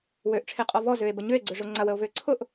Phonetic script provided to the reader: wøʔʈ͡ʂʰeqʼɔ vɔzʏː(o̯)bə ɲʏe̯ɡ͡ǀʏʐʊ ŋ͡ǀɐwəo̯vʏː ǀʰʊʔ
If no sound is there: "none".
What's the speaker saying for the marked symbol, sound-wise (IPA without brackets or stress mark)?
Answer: e̯